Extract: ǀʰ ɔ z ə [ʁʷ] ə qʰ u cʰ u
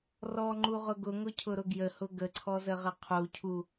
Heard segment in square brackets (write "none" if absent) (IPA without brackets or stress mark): ʁ